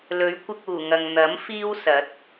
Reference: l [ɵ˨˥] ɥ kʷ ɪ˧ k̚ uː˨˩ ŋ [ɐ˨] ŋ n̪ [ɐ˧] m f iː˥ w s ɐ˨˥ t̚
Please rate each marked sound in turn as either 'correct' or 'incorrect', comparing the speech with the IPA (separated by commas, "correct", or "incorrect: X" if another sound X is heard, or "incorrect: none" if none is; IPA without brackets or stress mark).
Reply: correct, correct, incorrect: ɐ˨˥